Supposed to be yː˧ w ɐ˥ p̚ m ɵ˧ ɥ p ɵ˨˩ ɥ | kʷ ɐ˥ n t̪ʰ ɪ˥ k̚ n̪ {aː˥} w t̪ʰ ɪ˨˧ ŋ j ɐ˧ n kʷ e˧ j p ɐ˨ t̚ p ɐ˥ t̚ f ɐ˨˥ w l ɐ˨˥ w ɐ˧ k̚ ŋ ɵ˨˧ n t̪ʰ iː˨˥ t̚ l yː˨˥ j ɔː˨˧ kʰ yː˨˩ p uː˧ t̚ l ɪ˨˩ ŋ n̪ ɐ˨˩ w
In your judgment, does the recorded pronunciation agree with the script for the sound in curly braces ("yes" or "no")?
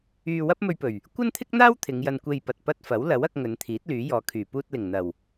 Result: yes